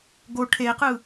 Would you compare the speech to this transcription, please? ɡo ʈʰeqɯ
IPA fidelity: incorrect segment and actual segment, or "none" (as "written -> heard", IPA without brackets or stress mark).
none